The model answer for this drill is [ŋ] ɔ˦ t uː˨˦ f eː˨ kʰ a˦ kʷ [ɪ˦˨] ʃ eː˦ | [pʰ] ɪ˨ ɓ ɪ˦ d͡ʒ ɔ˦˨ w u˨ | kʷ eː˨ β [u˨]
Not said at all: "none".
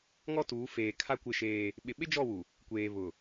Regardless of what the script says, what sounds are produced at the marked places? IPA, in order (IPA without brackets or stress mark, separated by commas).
ŋ, ɪ˦˨, ɓ, ʊ˨